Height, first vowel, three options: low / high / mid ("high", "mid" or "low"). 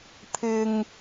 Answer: high